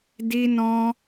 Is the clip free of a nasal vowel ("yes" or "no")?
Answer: no